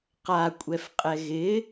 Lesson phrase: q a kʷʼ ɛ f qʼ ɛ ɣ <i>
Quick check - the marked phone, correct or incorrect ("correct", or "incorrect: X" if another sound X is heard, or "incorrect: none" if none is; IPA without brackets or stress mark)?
incorrect: ɪ